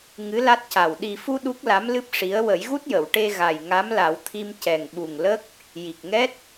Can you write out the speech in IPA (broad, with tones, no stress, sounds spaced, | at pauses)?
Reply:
ŋ ɨ˧˥ l a˦˥ t̚ c a˨˩ w ɗ i˨˩ f u˧ ɗ u˦˥ k̚ l a˧˥ m l ɨ˦˥ p̚ ʂ i˧˥ ə̯ w ə˨˩˦ j ɣ u˦˥ t̚ j ə˨˩˨ w ʈ e˧ ɣ a˨˩ j ŋ a˧˥ m l a˨˩˦ w t̪ʰ i˧ m c ɛ˨˩ ŋ ɓ u˨˩ ŋ l ə˦˥ k̚ | j i˨˩ k̚ ŋ ɛ˦˥ t̚